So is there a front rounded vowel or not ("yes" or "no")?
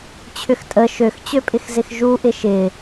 yes